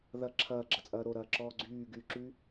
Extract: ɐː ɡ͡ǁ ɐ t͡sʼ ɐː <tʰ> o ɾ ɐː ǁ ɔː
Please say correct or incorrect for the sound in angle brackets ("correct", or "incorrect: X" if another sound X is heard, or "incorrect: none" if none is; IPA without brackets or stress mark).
incorrect: ɾ